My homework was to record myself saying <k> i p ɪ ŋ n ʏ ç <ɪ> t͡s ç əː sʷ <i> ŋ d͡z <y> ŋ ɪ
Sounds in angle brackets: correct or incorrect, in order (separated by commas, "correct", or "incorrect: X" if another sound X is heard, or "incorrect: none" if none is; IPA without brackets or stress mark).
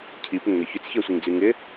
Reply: incorrect: cʰ, incorrect: ʏ, correct, correct